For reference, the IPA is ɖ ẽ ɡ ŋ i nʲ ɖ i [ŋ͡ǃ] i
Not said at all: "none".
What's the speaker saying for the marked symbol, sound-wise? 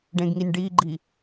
ɡ͡ǃ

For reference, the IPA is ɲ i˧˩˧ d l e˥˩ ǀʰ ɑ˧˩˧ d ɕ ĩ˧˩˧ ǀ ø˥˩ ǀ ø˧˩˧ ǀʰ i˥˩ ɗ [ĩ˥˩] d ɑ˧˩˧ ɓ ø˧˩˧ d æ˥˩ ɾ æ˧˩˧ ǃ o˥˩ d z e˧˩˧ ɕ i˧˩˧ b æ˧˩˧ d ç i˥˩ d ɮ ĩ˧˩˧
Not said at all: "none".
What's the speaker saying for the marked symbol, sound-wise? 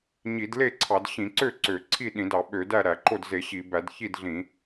ĩ˧˩˧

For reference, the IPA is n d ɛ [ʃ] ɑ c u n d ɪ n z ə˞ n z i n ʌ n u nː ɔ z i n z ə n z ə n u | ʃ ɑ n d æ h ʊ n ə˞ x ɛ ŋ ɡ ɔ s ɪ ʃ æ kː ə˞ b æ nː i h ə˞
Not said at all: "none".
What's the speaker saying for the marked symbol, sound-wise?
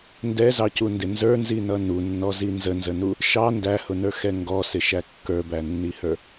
z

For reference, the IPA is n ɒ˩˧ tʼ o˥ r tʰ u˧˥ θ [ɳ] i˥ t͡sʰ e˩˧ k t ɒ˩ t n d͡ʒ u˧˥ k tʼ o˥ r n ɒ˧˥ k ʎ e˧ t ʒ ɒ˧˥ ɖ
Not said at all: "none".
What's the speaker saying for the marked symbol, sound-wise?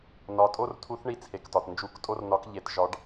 ɳ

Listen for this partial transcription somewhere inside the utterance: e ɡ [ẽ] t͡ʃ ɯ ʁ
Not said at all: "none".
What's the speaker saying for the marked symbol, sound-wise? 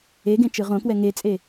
ẽ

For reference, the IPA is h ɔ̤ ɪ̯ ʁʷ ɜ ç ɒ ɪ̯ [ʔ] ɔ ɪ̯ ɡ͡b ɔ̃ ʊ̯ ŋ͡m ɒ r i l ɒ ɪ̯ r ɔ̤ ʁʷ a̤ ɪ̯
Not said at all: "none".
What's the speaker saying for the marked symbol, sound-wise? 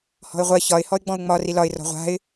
h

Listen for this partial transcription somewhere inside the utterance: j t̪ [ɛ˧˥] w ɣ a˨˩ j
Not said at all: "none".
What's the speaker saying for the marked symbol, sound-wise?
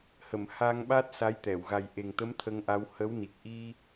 ɛ˨˩˨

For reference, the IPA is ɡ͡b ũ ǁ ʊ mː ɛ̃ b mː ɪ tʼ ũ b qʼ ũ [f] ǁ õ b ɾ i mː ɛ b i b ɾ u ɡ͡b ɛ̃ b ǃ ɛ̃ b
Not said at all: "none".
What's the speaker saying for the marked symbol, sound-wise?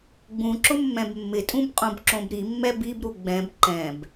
b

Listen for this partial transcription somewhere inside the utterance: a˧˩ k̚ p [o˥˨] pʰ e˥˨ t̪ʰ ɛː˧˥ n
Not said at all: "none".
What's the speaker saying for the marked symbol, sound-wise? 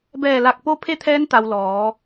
o˥˨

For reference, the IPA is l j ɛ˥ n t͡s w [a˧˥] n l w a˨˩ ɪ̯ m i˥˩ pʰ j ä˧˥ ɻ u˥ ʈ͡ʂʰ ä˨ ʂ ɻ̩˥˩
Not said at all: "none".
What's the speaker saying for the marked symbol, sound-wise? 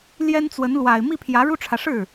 ə˧˥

